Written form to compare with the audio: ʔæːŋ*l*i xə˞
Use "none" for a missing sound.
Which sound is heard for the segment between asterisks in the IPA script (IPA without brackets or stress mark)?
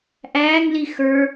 l